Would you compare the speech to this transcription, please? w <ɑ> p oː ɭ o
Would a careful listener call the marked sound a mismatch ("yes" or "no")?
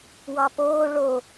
no